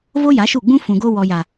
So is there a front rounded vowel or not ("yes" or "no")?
no